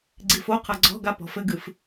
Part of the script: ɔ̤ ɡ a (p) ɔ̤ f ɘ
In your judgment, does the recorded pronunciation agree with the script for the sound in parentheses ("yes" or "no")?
yes